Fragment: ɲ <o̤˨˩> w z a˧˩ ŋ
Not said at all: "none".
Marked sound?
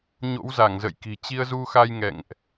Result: o̰˧˥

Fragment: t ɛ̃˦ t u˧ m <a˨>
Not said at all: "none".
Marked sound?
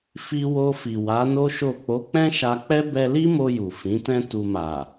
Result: a˨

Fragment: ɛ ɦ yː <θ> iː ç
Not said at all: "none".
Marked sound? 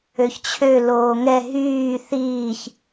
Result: θ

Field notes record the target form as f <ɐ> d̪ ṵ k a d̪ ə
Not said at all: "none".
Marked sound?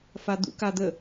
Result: a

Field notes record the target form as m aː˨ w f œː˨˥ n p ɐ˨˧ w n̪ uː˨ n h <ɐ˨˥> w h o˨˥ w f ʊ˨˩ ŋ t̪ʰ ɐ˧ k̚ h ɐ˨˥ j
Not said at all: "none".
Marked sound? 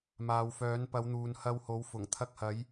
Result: ɐ˧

